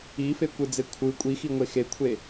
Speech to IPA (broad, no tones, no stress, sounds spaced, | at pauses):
i f e kʷ ɯ d͡z e kʷʰ ɯ kʷʼ i x i ŋʷ e x e kʷʰ e